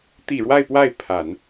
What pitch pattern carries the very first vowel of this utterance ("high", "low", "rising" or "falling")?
low